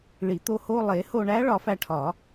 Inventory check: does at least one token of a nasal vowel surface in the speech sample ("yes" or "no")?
no